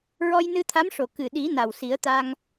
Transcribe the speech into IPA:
ɹ ɔ˧ j n ɨ˧ t̪ʰ a˧˥ m ʂ o˨˩ k ɨ˨˩ ɗ i˨˩˦ n a˨˩ w s i˨˩˦ ə̯ t̪ a˧ ŋ

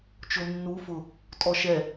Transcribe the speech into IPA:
t͡ʃ o nː u f ʊ | tʼ ɔ ʃ ɛ

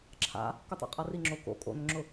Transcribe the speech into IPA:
ǁʰ a̰ | k ʊ tˤ o̰ qʼ a r i ŋ͡ǁ o k o̰ kʼ o̰ n ʏ ŋ͡ǁ ʊ

